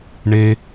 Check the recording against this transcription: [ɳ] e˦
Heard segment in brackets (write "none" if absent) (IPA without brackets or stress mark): ɳ